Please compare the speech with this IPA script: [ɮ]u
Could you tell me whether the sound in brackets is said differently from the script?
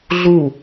no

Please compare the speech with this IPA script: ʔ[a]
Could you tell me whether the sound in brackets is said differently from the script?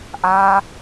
yes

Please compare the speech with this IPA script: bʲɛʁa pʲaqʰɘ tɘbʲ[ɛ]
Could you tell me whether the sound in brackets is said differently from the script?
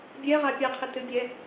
no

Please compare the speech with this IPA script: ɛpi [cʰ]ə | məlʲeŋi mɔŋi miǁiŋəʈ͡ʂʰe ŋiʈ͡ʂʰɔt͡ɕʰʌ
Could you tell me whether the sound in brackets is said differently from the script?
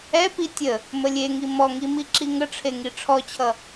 yes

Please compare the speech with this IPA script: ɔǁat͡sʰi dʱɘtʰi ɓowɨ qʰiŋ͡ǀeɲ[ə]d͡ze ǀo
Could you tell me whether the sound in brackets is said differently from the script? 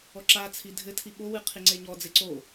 yes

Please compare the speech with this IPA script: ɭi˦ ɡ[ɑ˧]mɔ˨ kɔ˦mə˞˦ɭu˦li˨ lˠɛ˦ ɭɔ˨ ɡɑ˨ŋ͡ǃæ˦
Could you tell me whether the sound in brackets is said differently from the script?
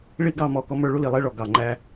yes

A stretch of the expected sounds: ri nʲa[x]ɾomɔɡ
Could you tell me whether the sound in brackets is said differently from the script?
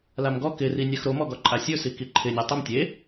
no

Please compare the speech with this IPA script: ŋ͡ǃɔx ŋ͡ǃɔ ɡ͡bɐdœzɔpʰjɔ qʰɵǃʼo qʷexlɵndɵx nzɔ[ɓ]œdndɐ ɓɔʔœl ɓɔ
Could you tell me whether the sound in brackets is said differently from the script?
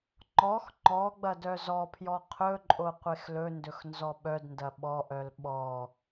no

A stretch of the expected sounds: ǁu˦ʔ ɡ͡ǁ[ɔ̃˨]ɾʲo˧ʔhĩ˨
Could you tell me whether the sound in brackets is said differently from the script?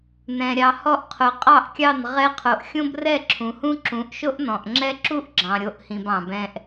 yes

